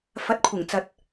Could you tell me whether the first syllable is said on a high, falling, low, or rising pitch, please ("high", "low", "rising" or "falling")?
rising